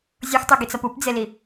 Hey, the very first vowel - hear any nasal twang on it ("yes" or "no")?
no